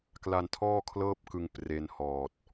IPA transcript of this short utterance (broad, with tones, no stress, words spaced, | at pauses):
kla˧ntʰɔː˥˩kʰlɤː˥˩p̚kɯ˧ŋ pre˧nhɔː˨˩t̚